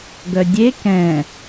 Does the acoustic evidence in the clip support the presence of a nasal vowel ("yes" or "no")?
yes